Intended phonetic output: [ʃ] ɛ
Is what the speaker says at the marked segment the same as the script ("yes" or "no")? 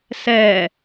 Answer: no